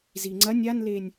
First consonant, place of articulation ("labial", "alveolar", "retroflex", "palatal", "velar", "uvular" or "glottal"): alveolar